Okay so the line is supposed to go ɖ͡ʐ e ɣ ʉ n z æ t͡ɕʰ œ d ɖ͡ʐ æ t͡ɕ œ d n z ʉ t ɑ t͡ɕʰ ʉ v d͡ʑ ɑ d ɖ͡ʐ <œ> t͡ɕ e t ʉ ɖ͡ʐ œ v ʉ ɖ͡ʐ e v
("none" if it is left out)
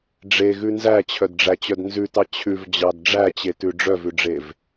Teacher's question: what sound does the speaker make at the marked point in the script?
æ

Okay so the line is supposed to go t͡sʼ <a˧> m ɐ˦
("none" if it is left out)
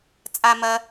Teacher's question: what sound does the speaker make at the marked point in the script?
a˧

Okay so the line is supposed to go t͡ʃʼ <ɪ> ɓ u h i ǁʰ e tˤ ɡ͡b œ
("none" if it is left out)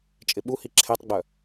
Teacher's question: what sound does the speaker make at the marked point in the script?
ɪ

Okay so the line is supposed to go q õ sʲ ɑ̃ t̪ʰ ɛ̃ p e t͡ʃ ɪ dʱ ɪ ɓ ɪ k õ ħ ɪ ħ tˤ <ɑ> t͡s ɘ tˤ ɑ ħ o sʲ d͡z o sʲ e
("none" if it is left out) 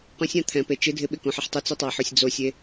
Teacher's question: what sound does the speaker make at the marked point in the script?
ə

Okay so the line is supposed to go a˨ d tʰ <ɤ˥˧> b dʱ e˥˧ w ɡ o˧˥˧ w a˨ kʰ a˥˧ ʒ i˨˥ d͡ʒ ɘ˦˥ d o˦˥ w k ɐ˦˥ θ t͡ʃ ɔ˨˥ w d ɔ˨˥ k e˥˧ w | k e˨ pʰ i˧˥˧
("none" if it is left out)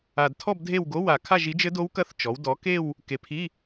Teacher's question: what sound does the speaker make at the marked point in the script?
ɔ˥˧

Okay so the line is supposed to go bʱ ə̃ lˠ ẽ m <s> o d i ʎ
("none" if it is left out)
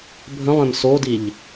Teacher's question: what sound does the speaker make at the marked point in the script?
s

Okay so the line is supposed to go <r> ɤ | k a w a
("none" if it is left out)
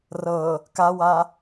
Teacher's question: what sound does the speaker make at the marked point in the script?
r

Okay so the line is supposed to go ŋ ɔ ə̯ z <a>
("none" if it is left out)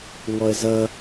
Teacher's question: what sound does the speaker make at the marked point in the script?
ʌ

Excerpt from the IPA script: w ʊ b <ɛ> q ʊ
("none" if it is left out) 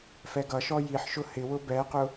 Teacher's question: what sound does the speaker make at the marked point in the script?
ɛ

